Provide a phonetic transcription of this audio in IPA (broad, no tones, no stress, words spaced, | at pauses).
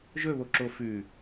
ʒɵβoǁo fʉ